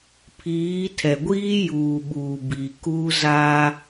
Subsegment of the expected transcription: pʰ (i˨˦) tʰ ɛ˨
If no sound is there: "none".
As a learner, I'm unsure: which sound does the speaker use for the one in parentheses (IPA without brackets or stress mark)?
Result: iː˨˦